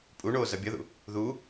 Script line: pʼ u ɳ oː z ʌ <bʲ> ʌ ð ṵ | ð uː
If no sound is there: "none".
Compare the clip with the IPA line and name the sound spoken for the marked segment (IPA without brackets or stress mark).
bʲ